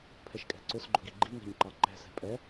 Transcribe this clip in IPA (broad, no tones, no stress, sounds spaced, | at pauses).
pʰ ɛ ʃ kʼ ɛ̤ ǀ ʊ s ɡ͡ǃ ʊ ɡ i ɡ͡ǃ i ŋ ɛ̤ ɲ ǃ ɑ ǃ ɛ̤ s ɛ̤ pʼ ɛ